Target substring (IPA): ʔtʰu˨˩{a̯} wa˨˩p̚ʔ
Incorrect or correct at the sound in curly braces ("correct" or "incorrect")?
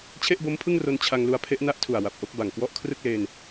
correct